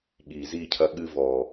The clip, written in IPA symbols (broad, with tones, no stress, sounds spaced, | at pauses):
ɠ iː˨ z i˦˨ cʰ ɐ˧ ɠ ɨ˧ v ɔ˨